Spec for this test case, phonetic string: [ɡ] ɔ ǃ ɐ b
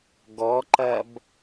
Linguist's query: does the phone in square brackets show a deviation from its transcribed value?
no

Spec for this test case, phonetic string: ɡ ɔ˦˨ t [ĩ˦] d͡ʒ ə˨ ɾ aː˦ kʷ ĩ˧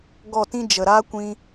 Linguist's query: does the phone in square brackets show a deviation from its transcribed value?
no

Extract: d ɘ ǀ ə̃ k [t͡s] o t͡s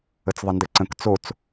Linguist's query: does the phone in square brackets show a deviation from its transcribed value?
no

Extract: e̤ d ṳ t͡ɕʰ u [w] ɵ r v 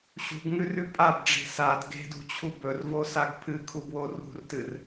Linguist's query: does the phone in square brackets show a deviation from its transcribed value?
yes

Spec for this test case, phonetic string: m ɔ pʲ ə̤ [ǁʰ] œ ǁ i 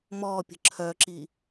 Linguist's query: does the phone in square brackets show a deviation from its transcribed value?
no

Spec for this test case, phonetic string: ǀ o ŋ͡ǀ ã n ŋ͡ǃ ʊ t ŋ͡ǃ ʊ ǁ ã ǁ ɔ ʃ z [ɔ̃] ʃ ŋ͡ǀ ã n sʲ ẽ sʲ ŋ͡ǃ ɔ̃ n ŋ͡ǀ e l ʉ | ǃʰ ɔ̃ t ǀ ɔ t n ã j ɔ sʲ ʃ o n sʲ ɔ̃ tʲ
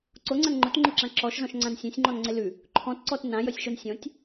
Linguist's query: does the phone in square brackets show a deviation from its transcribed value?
no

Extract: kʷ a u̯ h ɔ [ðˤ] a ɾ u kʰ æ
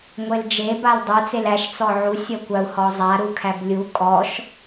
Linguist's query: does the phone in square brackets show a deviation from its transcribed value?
yes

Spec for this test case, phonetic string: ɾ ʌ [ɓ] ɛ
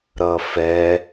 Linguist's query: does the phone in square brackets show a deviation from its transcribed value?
yes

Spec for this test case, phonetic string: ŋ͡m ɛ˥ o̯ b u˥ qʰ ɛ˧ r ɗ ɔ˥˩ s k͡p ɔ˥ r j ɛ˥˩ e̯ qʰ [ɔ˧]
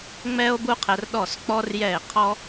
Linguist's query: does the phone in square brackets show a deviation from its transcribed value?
yes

